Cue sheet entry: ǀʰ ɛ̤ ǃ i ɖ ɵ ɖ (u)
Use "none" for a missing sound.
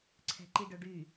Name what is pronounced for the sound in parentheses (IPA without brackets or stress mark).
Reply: y